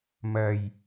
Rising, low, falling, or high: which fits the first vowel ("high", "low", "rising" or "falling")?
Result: low